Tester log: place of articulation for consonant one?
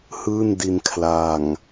glottal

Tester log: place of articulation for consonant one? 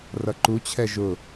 alveolar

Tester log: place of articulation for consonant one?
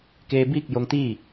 velar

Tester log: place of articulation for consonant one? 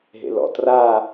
glottal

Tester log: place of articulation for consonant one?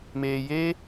labial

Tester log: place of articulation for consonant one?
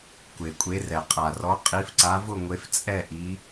velar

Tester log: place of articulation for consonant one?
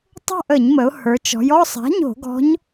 alveolar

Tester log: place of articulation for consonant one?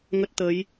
velar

